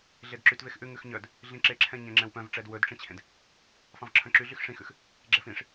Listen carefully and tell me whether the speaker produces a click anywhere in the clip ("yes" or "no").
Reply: yes